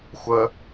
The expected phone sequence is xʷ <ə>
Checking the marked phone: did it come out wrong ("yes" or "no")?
no